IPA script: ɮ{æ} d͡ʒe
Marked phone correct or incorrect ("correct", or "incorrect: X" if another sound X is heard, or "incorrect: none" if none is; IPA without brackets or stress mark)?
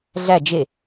correct